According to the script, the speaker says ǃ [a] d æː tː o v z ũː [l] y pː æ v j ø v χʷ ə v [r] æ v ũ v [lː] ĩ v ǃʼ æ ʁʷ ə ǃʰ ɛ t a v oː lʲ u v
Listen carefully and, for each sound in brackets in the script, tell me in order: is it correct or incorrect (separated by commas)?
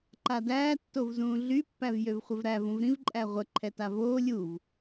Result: correct, incorrect, incorrect, incorrect